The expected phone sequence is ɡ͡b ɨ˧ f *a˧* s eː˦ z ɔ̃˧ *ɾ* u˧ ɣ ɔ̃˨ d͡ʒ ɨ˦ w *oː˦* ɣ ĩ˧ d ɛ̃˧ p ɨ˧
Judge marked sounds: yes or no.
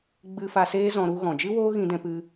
yes, yes, yes

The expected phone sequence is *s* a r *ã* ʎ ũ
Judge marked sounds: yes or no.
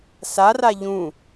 yes, no

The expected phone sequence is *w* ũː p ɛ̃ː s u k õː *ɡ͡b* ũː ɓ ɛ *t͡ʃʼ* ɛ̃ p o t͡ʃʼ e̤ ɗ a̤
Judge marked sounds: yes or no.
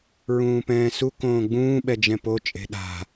no, yes, no

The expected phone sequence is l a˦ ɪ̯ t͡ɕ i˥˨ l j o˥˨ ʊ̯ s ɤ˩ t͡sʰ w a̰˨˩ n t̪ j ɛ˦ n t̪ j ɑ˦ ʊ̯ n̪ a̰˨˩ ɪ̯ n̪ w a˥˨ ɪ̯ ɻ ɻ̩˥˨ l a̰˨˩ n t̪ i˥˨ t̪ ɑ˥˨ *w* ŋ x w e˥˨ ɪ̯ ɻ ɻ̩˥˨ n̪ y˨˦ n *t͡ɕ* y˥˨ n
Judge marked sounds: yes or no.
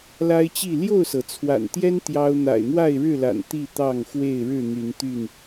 no, no

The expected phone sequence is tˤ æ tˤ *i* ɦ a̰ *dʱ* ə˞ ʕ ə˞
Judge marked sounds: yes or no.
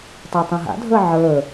no, yes

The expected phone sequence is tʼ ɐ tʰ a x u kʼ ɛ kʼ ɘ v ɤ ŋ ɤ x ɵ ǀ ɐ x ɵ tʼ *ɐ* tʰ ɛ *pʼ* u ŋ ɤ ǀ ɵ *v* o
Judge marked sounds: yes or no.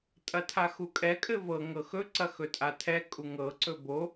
no, no, no

